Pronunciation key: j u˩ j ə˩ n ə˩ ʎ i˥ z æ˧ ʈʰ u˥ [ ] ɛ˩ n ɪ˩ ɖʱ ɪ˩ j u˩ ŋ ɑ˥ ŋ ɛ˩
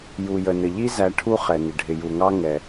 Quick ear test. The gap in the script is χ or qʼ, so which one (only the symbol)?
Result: χ